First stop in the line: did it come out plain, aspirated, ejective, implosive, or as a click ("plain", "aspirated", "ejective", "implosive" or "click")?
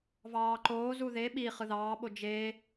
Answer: click